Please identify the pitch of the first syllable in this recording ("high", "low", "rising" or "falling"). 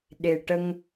low